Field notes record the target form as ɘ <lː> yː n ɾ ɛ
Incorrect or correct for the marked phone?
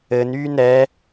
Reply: incorrect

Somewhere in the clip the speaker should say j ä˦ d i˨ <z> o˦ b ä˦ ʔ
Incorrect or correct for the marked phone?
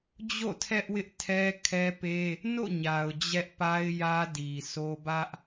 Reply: incorrect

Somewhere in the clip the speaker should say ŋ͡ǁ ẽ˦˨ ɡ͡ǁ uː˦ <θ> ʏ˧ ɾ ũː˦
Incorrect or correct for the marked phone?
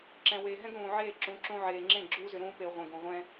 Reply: incorrect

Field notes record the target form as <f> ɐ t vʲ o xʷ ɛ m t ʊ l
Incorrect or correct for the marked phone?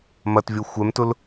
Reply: incorrect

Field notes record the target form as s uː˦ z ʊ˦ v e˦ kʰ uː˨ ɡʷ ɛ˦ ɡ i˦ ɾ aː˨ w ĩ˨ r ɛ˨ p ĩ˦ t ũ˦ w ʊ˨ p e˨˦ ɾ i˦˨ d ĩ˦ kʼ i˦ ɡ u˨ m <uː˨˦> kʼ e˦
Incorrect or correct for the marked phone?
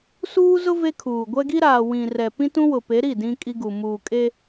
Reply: incorrect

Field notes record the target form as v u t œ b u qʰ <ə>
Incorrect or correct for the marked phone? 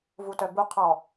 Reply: incorrect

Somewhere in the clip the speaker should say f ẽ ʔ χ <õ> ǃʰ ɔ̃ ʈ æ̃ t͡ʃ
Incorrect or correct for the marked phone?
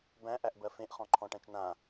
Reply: incorrect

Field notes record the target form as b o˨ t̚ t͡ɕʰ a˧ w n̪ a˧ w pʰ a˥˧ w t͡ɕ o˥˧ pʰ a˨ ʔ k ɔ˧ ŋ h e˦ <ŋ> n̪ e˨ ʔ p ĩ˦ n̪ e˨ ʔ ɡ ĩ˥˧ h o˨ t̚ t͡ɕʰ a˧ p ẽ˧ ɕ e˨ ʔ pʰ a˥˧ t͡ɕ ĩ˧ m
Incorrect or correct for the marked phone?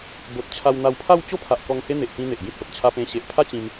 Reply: incorrect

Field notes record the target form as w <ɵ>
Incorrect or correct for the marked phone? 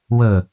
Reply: correct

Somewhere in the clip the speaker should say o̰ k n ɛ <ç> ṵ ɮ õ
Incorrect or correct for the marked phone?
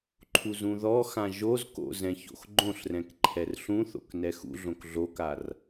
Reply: incorrect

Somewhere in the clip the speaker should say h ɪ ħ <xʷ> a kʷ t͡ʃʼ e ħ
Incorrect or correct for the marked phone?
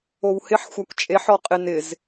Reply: correct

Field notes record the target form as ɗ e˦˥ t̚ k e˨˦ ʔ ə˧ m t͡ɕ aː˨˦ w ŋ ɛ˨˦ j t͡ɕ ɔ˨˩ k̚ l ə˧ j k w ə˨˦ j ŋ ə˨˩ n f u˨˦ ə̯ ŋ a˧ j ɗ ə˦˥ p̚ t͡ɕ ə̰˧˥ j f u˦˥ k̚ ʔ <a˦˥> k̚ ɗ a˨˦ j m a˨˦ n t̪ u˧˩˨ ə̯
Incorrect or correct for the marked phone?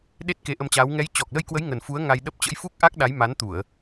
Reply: correct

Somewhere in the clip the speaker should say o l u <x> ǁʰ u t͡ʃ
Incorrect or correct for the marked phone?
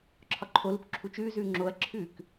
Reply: incorrect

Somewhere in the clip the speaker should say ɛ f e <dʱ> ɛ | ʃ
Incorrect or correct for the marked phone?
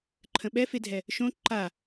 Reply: correct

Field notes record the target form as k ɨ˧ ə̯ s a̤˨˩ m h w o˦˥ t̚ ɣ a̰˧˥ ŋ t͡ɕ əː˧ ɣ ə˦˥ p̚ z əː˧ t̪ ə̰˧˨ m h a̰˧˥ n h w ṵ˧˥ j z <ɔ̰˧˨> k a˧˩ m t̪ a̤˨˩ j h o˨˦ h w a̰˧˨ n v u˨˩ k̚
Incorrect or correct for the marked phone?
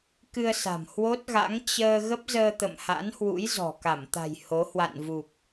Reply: incorrect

